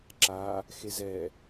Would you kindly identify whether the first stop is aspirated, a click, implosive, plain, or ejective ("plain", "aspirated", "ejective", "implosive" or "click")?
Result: click